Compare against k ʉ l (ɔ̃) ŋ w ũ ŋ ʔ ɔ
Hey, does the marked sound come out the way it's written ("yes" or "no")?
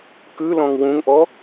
yes